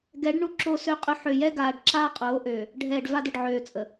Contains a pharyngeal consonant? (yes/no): yes